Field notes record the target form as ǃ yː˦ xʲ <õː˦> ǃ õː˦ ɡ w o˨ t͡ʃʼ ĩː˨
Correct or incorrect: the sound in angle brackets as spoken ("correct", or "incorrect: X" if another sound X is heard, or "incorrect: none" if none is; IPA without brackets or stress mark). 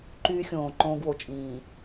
incorrect: õː˨